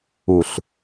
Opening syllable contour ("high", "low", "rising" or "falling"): low